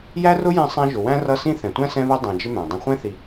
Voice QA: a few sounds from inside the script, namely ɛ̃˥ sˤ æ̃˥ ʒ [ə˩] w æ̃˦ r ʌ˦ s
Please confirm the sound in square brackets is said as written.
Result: no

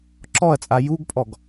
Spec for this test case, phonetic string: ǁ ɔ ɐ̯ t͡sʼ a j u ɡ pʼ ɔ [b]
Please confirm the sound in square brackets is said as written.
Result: no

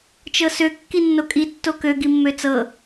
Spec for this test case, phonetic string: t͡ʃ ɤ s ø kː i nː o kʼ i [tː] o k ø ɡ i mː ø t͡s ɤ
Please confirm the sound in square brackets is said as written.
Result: yes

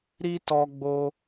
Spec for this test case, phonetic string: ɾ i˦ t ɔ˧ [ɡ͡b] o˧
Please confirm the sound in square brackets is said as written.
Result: yes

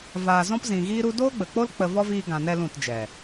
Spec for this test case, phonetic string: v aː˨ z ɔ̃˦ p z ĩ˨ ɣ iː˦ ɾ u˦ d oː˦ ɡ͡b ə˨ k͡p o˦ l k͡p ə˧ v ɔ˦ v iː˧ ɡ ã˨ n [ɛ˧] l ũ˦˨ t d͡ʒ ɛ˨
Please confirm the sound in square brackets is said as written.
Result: yes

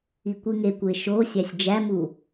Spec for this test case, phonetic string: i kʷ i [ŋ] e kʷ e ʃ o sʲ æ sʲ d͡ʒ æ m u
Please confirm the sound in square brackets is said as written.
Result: yes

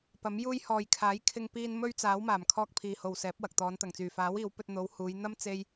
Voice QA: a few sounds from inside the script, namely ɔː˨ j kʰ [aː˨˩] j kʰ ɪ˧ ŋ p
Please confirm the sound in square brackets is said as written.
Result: no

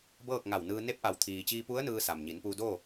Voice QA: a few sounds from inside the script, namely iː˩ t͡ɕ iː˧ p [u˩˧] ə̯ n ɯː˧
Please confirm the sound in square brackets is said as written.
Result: no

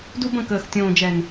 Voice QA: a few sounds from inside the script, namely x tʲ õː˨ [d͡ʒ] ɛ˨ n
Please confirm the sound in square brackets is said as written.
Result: yes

